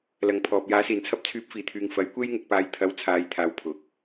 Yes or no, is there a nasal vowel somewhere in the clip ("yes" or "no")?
no